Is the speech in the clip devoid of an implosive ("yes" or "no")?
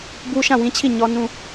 yes